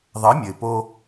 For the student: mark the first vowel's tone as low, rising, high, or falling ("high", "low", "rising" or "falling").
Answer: rising